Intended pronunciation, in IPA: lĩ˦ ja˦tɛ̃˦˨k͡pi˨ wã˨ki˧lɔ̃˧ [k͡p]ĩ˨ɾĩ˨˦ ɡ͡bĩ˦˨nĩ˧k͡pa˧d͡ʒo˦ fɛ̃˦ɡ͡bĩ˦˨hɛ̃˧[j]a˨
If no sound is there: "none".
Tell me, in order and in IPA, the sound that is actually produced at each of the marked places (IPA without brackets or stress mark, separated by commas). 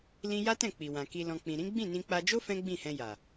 k͡p, j